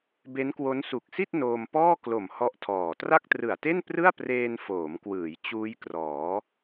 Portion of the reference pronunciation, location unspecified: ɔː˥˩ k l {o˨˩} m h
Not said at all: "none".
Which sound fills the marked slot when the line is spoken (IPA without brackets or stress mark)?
o˨˩